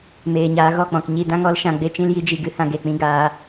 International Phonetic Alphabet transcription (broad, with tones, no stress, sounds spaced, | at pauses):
m eː˨ ɲ aː˧ ɣ ɔ˦˨ k͡p ɔ̃˨ k ɲ i˧ d ã˦ ŋ ɔ˦ l ʃ ã˧ ɡ͡b e˧ t͡ʃ ĩ˦ l j i˦ d͡ʒ i˧ ɡ ɨ˧ h ã˧ ɡ e˨ k͡p ĩ˧ ɡ aː˧